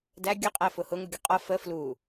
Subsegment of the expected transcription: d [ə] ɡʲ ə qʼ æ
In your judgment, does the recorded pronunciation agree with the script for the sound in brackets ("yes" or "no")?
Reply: no